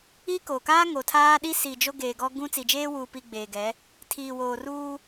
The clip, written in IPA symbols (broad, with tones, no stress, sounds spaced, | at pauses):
i˦ k o˨ k aː˦ ŋ o˨ tʰ aː˦ ɗ i˦ s i˨ d͡ʒ o˦ ɡ eː˨ ɡ ɔ˦ ɡ ũ˦ t͡s i˨ d͡ʒ eː˦ w uː˨ p i˨ ɡ͡b eː˨ ɡ ɛ˨˦ | tʰ iː˨ w oː˨ r uː˦